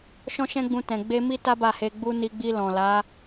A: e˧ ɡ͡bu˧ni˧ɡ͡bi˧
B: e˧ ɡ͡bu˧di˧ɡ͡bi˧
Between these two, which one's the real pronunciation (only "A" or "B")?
A